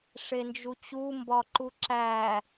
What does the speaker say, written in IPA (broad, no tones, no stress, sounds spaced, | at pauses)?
ʂ e n d͡ʒ u t͡ɕ u m b ɒ ǃ u ǁ æ